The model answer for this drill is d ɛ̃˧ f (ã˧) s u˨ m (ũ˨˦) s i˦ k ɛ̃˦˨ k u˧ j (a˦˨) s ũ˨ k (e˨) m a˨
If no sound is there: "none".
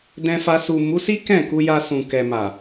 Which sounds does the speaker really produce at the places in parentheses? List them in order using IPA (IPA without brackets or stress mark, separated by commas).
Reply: a˧, u˨˦, a˧, ɛ˨